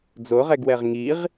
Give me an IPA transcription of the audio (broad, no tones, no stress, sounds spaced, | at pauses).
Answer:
d͡z o ʁ ɛ ɡ w ɛ ʁ ŋ i ʁ